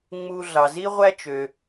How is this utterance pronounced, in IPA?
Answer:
ŋ͡m u˧ ɮ ɑ˩ z i˥ ʁʷ æ˥ t͡ʃ ø˩

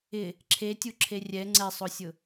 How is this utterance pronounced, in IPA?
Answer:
ɪ | ǁʰ e tʲ u ǁʰ e rʲ ɛ ŋ͡ǀ ɛ sˤ o sʲ ʊ

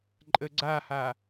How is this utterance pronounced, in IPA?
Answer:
ǃʼ ə ɡ͡ǀ a h a

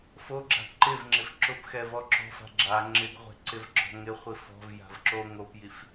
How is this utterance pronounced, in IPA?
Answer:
f o ɡ͡ǁ a̤ ǃ ɪ v ŋ͡ǁ ɪ f ǁ ʊ p x ɛ v ɔ ǁ ɔ̤ f a̤ ɡ͡ǁ a ŋ͡ǁ ɪ ɡ ʁʷ ɛ̤ ǀ ɪ v ɡ͡ǁ ɔ̤ ŋ ɪ χʷ i f ɔ̤ v j a̤ v ǁ o ŋ o p j i f

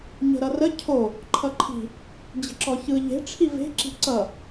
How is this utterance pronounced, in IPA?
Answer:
ɲ ə̤ ɾ ʌ r ə cʰ o | ǃʰ ʌ ǃʰ i̤ | d͡ʑ ə̤ ǁ ɔ ç ɯ ʎ e̤ ʈ͡ʂʰ i v e̤ ǁ i̤ ǀ ʌ

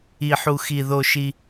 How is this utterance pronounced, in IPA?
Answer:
i˦ ħ u˦ x i˦ ð o˦ ʃ i˦

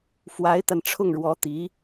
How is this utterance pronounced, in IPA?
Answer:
f w a˧˥ ɪ̯ t̪ a˧ n ʈ͡ʂʰ ʊ˥˩ ŋ ɻ w ɔ˧˥ t̪ i˧˥

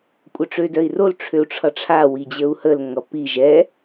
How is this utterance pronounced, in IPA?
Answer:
kʷʼ œ ʈ͡ʂ ø d œ i̯ r o l ʈ͡ʂʰ ø u̯ ʈ͡ʂʰ ʌ ʈ͡ʂʰ a w i d͡ʑ ə u̯ h ə l ŋ ʌ p i ʒ ɛ

